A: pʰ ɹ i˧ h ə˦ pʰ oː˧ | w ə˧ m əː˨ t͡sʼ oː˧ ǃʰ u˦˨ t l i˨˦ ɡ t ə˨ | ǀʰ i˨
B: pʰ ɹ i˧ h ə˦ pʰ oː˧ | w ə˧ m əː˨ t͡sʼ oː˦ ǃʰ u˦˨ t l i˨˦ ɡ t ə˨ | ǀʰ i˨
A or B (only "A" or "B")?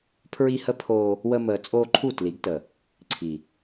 A